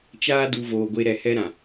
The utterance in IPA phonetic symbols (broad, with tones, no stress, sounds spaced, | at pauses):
t͡ʃ aː˦ d u˧ v oː˧ ɡʷ e˦ ɾ ɛ˧ h ɛ˦ ɾ ã˨